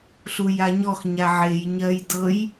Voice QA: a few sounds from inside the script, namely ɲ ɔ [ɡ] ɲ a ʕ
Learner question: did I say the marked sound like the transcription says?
no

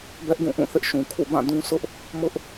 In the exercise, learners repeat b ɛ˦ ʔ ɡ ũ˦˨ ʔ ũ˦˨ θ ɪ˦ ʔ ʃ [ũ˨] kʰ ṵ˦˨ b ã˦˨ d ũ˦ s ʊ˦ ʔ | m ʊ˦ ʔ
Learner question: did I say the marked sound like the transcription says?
yes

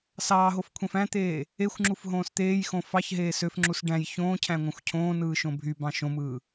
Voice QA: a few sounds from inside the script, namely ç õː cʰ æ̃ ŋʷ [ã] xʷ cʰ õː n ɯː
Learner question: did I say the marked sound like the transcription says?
no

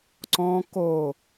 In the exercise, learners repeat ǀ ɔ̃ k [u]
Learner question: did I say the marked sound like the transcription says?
no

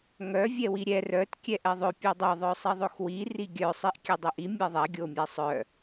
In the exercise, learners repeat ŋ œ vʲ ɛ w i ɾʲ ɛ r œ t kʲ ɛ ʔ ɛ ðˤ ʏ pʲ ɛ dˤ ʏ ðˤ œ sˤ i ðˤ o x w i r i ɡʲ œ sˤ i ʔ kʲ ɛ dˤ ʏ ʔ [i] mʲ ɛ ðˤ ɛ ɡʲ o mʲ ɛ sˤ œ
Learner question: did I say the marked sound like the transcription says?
yes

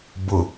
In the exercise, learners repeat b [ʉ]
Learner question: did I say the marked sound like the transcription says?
no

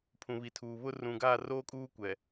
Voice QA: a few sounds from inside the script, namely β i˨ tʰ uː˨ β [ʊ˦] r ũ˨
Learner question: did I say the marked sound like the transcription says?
yes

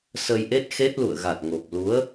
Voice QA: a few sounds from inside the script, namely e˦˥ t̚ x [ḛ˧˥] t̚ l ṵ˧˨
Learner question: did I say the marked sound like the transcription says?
no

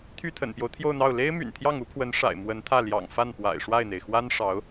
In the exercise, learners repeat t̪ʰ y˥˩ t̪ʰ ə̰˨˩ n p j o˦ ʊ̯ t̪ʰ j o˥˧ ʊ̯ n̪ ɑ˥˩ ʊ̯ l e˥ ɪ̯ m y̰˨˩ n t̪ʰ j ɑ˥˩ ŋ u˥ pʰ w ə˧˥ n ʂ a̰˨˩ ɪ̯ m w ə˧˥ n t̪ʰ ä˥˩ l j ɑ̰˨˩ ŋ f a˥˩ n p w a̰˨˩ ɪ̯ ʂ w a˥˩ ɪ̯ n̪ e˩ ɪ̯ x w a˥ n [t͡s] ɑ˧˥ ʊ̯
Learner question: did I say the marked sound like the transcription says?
no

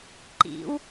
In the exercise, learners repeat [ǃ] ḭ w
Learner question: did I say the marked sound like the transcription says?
yes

